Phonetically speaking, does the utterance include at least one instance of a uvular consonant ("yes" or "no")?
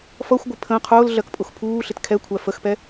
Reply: yes